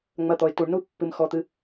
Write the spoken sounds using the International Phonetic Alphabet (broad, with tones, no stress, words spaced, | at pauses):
ŋ͡mɐ˩˧˩t̪ɔ˩ɪ̯ tu˩ɳnu˦ pːɨ˩˧˩m xɔ˩˧˩t̪ɨ˩˧˩